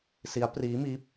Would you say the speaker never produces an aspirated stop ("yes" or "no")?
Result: yes